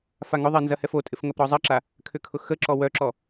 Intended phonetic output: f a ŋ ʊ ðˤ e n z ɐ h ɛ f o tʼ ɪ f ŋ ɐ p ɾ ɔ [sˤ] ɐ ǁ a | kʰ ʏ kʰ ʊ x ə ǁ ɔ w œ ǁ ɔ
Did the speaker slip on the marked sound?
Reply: yes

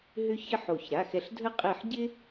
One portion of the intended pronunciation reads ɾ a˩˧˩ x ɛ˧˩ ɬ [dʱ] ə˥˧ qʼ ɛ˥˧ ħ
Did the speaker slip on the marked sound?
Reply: no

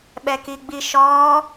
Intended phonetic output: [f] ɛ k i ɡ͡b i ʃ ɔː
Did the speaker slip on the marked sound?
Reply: yes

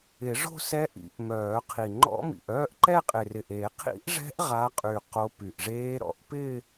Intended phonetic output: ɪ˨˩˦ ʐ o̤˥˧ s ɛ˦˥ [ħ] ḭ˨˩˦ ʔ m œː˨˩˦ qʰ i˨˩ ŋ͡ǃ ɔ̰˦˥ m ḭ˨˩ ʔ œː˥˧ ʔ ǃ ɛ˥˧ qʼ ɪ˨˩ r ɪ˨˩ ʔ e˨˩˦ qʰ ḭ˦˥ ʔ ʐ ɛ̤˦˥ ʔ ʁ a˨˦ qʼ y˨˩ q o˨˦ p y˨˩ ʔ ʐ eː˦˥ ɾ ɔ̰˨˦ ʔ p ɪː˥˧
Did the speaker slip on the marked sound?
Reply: yes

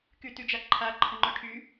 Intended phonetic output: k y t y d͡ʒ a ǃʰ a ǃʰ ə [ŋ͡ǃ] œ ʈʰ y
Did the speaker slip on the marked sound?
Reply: no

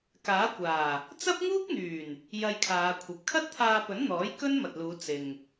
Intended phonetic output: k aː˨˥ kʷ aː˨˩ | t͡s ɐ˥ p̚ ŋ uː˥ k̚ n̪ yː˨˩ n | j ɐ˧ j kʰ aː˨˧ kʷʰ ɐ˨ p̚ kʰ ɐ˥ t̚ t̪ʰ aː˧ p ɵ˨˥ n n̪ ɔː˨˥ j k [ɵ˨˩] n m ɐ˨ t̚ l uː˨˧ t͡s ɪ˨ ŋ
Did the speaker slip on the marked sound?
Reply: yes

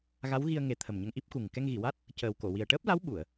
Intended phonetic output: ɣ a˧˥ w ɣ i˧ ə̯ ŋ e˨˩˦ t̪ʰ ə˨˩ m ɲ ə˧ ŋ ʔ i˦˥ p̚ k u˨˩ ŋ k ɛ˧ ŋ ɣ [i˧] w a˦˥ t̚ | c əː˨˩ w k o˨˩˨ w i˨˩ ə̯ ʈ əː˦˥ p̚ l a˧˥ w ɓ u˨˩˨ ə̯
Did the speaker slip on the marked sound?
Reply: yes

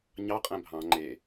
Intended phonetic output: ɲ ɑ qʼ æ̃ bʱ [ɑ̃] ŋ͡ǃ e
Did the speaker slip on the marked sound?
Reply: no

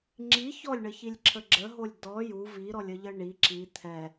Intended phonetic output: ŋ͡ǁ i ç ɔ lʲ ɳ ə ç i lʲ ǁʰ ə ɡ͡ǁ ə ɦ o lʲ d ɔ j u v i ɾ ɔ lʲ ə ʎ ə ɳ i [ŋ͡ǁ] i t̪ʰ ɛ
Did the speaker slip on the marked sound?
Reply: yes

